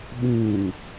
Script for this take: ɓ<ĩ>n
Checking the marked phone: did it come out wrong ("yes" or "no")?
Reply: no